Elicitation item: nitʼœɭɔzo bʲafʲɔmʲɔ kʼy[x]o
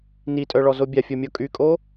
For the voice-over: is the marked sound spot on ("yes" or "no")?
no